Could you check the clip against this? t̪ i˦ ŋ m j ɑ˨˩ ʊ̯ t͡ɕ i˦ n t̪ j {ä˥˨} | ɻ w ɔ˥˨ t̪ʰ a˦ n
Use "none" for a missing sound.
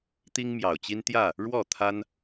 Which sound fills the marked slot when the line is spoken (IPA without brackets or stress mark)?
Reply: ä˥˨